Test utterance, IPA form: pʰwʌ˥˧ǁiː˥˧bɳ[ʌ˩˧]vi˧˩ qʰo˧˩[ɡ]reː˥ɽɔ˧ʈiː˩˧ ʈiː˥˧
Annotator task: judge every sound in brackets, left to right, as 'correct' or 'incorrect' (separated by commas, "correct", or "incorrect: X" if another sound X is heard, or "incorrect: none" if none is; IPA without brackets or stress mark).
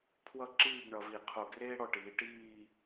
correct, correct